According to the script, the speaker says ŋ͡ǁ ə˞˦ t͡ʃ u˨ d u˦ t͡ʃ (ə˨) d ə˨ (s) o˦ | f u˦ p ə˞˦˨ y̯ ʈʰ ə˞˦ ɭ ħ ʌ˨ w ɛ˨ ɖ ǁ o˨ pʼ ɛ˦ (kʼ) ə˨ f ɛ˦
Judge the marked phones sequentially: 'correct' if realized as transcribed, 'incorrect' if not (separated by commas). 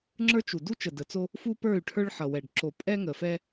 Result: correct, incorrect, incorrect